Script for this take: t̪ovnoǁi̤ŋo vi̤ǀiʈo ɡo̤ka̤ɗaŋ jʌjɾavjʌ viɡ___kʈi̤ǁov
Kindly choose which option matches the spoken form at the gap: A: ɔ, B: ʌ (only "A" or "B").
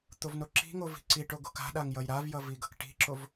B